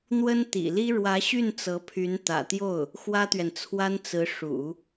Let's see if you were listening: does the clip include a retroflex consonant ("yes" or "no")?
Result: yes